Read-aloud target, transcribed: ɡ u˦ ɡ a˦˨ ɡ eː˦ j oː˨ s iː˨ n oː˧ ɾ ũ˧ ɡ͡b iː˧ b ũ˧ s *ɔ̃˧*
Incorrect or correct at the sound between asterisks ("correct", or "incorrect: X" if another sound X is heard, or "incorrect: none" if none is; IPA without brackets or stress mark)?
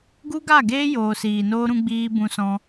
correct